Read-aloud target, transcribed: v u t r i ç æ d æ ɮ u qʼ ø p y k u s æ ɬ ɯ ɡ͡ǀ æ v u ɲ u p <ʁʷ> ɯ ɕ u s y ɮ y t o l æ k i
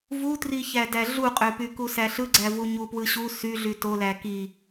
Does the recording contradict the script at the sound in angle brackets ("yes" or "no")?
yes